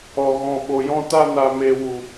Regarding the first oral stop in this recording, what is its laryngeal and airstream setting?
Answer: implosive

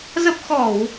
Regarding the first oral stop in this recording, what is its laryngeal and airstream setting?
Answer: plain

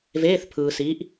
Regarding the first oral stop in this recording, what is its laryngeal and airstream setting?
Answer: aspirated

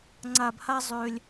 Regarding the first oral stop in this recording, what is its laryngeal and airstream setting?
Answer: click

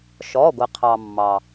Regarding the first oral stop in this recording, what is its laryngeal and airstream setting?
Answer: plain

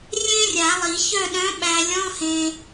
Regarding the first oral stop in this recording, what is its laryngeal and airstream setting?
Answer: implosive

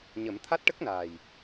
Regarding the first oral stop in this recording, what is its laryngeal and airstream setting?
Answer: aspirated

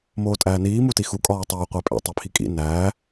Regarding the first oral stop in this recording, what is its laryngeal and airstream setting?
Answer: ejective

